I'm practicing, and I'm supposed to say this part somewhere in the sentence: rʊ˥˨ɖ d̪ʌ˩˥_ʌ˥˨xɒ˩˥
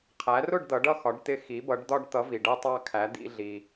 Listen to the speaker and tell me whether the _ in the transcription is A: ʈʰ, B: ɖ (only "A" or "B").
B